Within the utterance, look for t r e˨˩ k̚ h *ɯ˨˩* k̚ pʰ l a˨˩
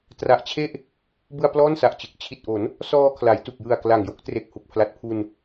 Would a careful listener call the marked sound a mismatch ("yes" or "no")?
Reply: yes